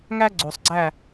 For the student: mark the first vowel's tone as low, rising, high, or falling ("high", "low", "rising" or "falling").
high